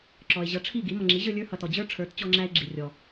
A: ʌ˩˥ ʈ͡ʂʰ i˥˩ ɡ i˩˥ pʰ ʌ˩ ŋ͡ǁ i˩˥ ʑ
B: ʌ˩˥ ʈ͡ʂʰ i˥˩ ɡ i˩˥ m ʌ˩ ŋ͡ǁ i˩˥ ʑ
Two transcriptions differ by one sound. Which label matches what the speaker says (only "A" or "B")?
B